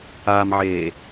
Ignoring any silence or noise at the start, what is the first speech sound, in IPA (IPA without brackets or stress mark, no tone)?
a